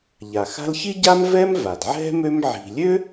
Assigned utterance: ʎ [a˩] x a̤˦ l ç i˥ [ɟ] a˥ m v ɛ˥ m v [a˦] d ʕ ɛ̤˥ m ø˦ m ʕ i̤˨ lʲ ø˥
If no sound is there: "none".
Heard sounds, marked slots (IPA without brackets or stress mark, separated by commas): a˩, ɟ, a˩